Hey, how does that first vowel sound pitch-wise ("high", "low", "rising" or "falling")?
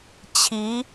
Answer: rising